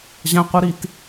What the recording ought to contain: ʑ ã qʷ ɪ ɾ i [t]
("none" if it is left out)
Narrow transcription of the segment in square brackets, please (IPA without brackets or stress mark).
t